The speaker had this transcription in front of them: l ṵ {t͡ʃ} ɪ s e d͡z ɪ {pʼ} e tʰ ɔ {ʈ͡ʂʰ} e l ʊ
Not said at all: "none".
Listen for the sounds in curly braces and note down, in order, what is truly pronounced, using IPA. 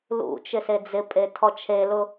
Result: t͡ʃ, pʼ, t͡ʃʰ

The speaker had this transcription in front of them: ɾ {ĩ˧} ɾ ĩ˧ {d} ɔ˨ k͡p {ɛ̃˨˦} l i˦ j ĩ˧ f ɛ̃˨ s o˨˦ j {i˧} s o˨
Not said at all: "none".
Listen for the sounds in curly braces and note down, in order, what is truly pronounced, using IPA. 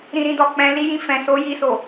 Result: ĩ˧, d, ɛ̃˨˦, i˧

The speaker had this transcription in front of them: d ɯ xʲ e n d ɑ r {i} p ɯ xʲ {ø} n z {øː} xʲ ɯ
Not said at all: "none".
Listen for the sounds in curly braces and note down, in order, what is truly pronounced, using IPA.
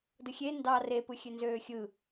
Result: e, ø, øː

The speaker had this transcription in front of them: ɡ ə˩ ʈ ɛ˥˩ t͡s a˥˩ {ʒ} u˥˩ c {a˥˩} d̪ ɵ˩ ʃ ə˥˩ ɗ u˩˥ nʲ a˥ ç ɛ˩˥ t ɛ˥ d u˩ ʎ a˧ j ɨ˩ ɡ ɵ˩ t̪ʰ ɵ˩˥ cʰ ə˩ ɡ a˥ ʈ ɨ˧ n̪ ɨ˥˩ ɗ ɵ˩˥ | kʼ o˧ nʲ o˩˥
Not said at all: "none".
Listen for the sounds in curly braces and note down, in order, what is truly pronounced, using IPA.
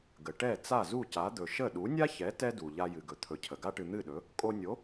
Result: z, a˩˥

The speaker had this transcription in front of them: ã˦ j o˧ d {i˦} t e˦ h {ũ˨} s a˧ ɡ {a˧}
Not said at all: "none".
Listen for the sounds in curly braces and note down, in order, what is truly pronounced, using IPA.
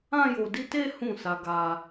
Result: i˦, ũ˦˨, a˧

